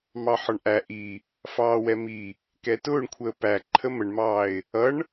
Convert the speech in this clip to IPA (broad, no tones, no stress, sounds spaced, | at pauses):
m ɑ ħ ɒ ɳ ʔ æ ʔ i | f ɑː w ɛ m i | k ɛ t ʊː ɳ kʷʰ əː p æ ǃʰ ə m ə ɳ m ɑː ɪ̯ | ʌ ɳ